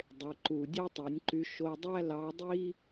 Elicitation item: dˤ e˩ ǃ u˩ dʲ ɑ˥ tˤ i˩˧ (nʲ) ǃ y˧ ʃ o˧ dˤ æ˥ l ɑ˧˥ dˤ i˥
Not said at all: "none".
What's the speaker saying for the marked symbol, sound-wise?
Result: nʲ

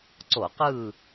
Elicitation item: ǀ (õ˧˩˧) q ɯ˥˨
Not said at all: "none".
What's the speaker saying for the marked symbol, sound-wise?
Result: o˧˩˧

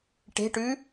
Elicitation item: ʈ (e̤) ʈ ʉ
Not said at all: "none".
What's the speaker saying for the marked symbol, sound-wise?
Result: e̤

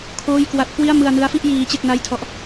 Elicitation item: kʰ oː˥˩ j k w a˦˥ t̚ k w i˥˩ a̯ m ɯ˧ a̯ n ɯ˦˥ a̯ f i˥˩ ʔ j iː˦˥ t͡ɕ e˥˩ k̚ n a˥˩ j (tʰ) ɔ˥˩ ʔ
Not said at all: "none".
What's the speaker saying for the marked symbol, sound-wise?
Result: tʰ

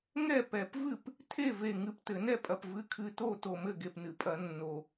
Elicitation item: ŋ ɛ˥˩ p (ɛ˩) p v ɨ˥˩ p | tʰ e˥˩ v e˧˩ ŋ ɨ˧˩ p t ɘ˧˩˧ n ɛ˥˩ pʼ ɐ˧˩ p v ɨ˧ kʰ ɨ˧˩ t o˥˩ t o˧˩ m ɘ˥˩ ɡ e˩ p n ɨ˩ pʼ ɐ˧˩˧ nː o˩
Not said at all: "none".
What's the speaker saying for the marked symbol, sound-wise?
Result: ɛ˧˩˧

